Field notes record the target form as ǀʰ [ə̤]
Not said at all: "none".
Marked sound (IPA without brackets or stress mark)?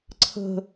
ə̤